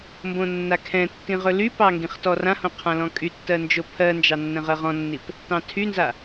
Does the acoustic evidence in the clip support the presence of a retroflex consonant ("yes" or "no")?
no